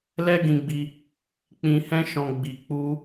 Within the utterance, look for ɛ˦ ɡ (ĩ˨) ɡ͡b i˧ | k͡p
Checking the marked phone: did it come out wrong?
yes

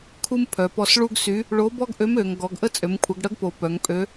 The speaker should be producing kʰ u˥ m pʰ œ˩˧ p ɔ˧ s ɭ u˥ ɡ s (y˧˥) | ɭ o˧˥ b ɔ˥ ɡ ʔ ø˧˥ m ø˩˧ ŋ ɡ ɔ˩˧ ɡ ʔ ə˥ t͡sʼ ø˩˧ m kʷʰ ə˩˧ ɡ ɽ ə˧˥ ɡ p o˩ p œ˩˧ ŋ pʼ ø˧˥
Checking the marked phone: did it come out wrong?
no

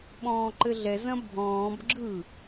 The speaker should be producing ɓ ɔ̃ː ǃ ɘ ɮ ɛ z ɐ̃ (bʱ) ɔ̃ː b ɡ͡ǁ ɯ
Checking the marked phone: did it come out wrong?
no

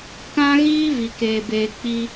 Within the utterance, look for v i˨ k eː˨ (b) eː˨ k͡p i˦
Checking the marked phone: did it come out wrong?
no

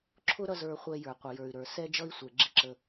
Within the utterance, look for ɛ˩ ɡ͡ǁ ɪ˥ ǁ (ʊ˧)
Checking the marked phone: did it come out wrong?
yes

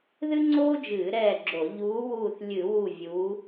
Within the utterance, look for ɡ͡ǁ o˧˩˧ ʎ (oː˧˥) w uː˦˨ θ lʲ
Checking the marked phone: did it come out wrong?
yes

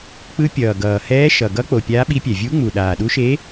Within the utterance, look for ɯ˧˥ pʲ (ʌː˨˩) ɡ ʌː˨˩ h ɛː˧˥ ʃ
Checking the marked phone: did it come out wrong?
no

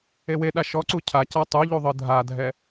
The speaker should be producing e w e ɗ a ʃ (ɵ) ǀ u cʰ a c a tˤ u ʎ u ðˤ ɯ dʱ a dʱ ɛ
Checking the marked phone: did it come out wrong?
yes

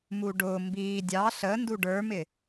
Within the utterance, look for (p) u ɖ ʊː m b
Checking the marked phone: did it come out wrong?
yes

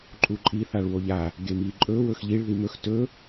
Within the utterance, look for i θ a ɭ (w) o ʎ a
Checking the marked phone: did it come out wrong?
no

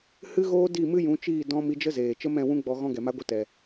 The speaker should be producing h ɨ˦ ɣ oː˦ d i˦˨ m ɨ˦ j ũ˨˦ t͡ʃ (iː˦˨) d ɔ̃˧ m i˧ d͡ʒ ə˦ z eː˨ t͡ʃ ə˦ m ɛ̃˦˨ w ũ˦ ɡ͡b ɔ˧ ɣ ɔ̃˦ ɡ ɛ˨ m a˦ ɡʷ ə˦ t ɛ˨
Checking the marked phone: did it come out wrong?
no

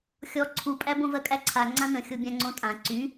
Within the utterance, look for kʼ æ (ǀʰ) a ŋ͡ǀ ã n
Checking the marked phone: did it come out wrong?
no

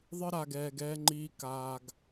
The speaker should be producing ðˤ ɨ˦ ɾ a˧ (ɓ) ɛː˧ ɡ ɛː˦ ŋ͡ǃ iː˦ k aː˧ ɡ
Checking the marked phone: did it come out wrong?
yes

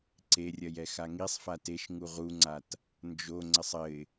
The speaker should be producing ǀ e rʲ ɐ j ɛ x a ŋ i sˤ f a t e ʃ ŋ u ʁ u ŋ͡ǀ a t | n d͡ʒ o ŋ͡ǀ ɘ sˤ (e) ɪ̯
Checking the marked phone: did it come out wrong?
yes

